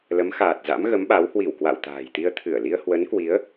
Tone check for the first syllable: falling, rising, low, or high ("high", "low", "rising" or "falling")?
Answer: rising